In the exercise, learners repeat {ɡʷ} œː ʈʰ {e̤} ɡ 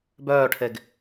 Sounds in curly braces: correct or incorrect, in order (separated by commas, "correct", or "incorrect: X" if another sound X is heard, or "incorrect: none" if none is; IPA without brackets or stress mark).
incorrect: b, incorrect: e